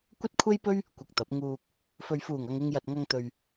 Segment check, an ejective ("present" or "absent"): absent